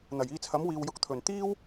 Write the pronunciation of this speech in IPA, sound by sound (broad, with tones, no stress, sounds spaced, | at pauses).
n̪ ɐ˨˩ j iː˧ t͡sʰ ɐ˨˥ m w iː˨ w j ʊ˨ k̚ t̪ʰ ɵ˨˩ n t̪ iː˥ w